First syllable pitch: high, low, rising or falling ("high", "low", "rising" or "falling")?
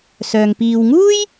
low